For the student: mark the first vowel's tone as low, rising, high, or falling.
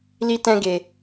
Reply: high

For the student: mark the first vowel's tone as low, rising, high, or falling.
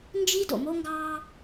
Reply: high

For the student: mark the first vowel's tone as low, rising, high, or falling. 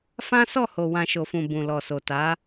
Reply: high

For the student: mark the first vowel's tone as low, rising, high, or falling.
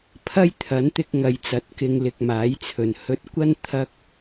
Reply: high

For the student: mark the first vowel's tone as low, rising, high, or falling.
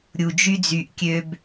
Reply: low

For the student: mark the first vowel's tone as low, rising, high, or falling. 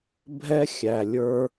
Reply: high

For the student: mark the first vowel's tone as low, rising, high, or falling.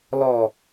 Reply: low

